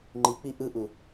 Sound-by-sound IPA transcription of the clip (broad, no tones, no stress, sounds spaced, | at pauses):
ŋ͡ǃ i k͡p i ʔ ɯ ʔ u